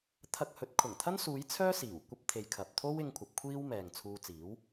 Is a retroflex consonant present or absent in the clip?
absent